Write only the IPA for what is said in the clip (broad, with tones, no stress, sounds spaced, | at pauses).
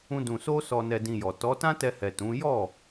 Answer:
ũ˦ d ũ˧ s o˦ s ɔ˧ n ɛ˧ d ĩ˧ j ɔ˨ t ɔ˨˦ t ã˦ t ɛ˧ h ɛ˨ t ũ˨˦ j ɔ˦˨